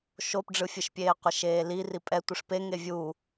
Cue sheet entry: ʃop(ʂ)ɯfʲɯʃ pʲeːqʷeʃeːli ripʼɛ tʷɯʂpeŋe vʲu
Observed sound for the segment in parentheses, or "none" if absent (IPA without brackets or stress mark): ɖ͡ʐ